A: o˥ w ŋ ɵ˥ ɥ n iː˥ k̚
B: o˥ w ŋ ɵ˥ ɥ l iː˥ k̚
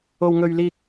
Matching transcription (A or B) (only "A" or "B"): B